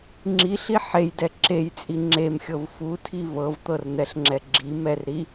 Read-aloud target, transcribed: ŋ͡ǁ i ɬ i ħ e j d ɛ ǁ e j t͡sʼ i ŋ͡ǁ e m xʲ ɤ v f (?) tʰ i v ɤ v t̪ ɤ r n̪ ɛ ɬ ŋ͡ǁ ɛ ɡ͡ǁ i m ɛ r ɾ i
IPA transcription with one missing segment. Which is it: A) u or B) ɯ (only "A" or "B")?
A